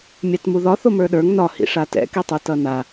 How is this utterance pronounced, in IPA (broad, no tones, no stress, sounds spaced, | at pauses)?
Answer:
mʲ a t m u ð ɒ θ o m ə˞ ɗ ə˞ ŋ n ɒ h ḭ ʂ a t ɛ̰ k i tˤ u t ʌ n a